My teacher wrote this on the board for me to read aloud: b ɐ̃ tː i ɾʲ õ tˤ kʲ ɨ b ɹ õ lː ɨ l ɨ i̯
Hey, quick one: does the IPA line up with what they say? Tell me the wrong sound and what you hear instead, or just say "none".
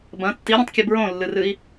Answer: l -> r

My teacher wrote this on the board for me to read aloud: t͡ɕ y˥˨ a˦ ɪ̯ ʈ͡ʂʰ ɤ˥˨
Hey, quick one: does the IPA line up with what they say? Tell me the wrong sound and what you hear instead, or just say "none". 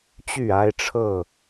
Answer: none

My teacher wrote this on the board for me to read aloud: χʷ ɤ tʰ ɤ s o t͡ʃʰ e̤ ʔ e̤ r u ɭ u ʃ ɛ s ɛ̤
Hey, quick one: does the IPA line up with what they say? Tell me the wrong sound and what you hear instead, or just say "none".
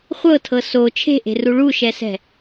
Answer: none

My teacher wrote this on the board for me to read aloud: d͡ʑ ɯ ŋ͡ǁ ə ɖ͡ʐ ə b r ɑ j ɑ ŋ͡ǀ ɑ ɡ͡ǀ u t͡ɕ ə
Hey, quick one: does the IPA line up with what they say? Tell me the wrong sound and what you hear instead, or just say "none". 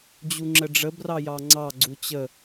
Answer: ɯ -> u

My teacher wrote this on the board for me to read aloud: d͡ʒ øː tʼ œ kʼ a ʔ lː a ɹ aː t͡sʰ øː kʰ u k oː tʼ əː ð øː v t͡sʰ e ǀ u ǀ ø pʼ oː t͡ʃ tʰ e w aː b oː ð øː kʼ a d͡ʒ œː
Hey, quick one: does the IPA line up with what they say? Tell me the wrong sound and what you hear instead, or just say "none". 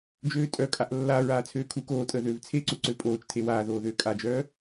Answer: b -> ð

